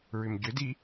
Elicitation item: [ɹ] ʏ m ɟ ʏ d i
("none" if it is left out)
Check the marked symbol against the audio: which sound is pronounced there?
ɹ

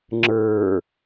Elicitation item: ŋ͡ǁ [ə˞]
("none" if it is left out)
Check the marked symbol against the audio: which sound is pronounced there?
ə˞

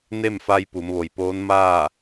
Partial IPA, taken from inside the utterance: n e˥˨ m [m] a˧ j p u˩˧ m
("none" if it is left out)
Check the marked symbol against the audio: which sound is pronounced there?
f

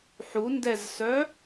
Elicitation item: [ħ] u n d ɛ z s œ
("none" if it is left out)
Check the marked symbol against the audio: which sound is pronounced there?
ħ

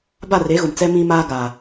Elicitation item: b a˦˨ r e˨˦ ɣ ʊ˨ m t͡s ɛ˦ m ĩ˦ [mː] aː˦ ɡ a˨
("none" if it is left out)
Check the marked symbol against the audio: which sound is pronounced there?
m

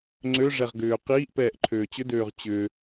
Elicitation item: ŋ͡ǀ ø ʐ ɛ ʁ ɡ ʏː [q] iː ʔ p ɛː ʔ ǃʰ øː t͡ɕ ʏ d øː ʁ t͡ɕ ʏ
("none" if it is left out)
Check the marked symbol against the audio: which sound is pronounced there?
q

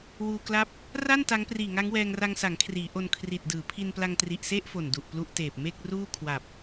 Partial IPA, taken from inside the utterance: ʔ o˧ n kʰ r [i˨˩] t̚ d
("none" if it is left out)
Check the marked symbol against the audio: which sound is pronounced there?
i˨˩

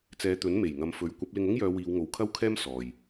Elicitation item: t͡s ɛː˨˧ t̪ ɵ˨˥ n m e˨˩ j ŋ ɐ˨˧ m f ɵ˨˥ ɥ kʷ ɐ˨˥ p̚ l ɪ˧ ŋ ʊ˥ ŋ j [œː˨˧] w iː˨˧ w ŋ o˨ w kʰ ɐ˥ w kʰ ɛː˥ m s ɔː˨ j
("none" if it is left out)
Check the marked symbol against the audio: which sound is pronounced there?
œː˨˧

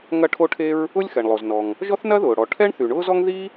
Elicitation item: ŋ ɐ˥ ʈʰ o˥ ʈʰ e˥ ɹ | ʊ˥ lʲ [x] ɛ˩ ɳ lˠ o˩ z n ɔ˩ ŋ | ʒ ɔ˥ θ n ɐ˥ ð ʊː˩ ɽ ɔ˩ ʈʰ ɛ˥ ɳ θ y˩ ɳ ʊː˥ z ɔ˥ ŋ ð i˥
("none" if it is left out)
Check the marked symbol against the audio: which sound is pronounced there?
x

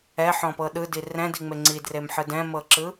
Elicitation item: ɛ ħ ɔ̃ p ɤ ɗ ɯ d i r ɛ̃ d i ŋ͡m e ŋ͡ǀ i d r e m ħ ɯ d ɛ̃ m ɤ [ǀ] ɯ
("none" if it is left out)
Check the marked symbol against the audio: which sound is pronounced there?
ǁ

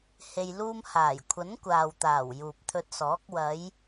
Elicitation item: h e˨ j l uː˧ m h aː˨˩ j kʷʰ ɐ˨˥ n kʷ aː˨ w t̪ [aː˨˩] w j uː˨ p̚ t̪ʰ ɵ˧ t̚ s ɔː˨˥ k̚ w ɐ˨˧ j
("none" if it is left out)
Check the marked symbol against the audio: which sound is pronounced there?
aː˨˩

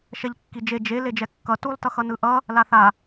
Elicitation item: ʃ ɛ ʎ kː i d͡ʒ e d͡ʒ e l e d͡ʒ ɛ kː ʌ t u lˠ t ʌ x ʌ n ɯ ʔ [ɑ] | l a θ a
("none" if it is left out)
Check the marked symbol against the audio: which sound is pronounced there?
ʌ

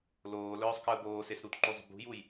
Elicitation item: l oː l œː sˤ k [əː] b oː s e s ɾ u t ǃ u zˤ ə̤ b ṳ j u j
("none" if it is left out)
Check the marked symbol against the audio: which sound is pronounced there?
əː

